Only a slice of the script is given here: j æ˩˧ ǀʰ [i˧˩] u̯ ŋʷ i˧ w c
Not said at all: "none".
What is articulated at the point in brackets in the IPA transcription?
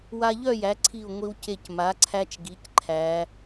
i˧˩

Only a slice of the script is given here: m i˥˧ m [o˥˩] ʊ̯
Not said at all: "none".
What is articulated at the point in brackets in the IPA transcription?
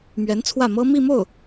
o˥˩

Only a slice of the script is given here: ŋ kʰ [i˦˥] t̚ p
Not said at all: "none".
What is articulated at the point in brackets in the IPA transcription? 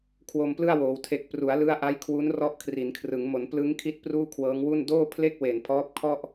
i˦˥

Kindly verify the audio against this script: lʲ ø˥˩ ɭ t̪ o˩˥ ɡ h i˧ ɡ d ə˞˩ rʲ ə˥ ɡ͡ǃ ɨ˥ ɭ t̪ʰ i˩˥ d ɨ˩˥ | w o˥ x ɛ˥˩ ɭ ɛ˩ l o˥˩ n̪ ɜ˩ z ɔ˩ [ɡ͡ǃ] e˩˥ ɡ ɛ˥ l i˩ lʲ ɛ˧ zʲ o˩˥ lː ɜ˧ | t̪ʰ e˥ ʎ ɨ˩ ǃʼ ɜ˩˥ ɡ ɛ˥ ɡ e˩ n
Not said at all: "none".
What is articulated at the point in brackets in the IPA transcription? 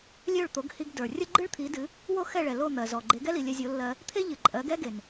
ɡ͡ǃ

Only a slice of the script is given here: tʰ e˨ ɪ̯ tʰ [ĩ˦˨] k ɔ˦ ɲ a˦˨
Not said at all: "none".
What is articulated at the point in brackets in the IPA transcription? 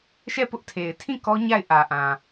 ĩ˦˨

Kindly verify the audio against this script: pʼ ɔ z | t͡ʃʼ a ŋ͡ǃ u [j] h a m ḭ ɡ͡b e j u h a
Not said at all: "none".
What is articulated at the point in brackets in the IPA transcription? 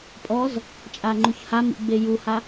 ç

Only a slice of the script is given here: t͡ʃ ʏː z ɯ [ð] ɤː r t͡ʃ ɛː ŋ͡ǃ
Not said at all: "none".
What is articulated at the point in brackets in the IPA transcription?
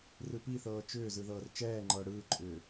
ð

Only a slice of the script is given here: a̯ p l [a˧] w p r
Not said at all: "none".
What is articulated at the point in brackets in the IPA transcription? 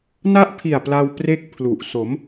a˧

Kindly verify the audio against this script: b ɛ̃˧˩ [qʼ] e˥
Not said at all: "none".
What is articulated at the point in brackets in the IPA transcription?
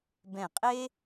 qʼ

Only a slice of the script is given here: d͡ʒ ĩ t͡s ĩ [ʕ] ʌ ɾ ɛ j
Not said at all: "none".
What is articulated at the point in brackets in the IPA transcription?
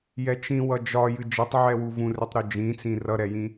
r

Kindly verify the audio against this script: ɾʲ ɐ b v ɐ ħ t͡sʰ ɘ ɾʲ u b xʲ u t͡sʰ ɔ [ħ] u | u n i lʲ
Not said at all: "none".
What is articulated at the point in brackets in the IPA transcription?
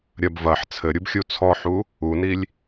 ħ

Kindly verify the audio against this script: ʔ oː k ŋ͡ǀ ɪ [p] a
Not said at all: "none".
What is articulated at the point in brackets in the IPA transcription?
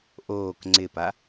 p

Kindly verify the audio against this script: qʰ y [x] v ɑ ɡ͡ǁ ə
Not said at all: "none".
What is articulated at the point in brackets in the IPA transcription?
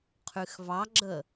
x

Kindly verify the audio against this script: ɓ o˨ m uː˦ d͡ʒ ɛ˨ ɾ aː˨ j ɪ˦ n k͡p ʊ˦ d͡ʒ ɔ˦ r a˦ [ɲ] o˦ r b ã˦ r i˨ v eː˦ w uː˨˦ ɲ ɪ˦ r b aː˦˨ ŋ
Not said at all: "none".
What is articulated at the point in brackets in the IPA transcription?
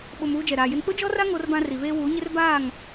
ŋ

